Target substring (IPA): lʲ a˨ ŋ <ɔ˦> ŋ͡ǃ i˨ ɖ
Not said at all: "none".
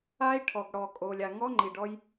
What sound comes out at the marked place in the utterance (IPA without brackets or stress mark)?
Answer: ɔ˦